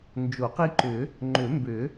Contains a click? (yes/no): yes